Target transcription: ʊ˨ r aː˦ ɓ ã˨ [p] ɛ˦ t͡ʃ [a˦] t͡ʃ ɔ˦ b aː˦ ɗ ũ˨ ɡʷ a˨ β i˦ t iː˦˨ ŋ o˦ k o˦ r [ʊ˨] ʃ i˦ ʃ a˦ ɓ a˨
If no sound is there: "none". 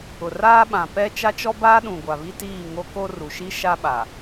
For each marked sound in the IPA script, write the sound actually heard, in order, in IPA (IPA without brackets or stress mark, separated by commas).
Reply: p, a˦, u˨